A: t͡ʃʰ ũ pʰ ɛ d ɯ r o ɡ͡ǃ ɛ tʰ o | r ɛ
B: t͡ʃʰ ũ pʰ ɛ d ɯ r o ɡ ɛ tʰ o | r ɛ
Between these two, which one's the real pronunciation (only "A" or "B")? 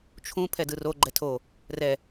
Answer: A